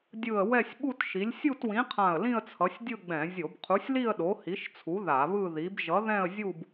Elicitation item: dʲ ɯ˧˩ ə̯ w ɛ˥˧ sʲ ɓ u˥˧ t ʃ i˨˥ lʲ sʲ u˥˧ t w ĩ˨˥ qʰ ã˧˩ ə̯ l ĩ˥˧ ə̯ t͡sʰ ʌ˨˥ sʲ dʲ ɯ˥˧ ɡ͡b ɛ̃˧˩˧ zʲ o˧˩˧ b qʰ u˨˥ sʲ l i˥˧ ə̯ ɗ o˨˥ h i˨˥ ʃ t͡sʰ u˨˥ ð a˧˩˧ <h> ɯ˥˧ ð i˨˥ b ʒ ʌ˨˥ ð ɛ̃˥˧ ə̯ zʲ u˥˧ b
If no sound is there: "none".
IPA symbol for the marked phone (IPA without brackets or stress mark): β